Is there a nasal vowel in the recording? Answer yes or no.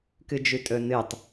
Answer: no